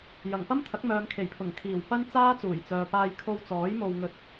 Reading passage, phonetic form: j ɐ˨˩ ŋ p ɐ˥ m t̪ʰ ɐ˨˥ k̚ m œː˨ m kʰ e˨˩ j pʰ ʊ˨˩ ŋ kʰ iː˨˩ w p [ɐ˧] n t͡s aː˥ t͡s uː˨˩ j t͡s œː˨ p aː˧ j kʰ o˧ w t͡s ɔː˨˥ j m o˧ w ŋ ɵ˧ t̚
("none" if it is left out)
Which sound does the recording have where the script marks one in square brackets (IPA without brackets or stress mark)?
ɐ˥